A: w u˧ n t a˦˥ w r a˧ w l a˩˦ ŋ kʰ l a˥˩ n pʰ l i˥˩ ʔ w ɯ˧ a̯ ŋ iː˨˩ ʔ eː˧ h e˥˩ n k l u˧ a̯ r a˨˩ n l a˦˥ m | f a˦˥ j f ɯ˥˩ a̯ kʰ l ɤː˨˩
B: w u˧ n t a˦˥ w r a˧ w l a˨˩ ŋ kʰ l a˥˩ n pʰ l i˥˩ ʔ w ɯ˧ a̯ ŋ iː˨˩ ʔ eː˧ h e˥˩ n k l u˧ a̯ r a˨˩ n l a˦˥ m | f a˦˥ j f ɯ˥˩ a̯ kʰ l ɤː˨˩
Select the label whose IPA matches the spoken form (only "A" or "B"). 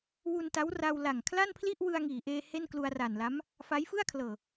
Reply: B